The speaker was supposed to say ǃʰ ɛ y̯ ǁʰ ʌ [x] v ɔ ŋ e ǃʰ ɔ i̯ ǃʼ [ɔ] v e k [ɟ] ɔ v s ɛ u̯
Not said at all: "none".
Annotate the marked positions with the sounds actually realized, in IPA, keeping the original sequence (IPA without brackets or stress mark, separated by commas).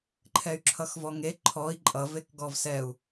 x, ʌ, ɡ